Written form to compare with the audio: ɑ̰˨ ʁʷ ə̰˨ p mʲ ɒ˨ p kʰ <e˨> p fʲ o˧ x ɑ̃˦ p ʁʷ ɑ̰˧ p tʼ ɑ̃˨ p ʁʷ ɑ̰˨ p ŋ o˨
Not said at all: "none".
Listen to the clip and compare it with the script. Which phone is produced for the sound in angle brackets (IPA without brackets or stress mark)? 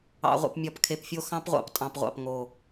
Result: e˨